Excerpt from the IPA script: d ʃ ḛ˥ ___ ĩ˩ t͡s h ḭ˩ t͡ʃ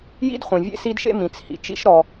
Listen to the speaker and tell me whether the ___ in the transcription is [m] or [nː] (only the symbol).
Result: m